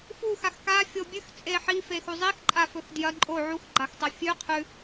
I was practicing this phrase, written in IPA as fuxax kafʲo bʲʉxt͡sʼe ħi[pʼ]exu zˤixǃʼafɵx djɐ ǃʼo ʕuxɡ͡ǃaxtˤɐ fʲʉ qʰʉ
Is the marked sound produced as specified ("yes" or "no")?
no